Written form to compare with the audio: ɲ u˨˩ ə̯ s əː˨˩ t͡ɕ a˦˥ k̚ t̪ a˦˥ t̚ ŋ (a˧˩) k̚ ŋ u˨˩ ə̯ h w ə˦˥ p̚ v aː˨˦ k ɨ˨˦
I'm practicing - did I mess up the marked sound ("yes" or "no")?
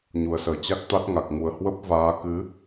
yes